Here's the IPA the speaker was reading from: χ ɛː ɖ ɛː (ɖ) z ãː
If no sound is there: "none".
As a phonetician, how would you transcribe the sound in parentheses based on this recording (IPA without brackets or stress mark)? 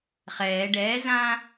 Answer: none